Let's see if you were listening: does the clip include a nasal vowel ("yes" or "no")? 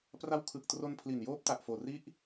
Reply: no